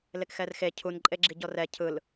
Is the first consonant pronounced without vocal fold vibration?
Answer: no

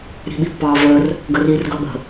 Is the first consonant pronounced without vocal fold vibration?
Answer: no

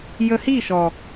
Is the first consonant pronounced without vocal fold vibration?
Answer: no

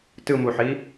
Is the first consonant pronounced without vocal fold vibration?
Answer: yes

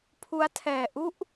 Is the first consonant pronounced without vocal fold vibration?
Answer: yes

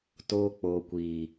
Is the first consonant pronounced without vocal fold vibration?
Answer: yes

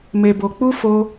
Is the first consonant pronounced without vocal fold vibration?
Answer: no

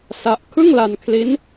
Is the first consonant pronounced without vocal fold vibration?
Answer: yes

